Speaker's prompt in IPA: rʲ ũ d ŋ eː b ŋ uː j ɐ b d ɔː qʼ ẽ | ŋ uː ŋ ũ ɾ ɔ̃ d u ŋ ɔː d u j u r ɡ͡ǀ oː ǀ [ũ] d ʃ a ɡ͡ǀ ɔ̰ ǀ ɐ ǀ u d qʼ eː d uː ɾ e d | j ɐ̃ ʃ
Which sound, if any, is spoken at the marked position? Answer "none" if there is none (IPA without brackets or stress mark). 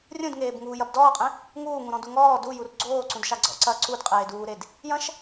ũ